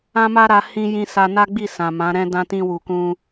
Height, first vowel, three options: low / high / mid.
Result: low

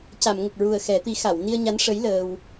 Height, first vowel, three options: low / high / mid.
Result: low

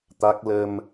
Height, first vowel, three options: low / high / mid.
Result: low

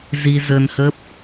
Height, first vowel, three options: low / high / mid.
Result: high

